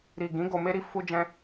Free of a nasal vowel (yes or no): no